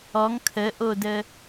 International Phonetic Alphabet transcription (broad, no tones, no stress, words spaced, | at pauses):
ɔŋ kʰəʔodə